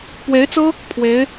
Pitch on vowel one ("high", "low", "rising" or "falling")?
rising